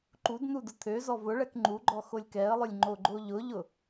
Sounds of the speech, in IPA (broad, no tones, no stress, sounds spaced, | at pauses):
ǃ u d n u d ʊ t̪ʰ ø z ɔ v ʊ ɭ ɛ k ŋ͡ǃ u ɡ͡ǃ ɔ x o lʲ k ɛ ə̯ lˠ ʊ lʲ ŋ͡ǃ o ɡ͡ǃ o ʎ ʊ ʎ ʊ